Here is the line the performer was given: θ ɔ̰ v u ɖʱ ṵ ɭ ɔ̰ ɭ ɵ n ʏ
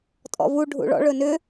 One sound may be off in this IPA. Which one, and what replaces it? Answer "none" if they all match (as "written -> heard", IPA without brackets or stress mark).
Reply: θ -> tʼ